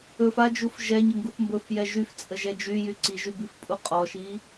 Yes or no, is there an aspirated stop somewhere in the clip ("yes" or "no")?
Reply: no